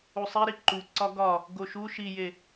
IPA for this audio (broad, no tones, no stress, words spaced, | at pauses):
usˤiɾi ǃu ǀɒɡɒ | ɡoʃu ʃije